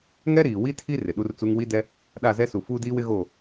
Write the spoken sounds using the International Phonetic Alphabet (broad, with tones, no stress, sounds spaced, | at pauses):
ŋ ɛ˦ ɾ iː˨ w i˦ tʰ i˦ r ɪ˨ ɗ u˦ r t͡s u˦ ŋ w i˦ d ɛ˦ | ɗ a˦˨ z ɛ˦ s u˨ f uː˦ d iː˦ w ɪ˦ ɣ o˦˨